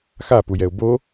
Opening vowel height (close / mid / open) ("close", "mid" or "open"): open